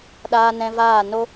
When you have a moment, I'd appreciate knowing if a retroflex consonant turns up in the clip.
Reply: no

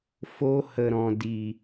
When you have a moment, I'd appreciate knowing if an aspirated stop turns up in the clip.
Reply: no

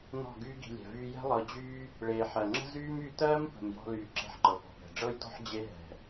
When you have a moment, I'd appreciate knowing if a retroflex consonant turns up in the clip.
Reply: yes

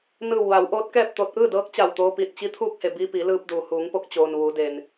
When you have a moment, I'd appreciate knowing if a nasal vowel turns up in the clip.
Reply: no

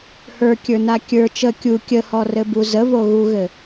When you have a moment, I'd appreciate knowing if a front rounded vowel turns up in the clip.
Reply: no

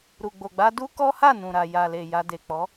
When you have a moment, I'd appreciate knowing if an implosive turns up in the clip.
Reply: no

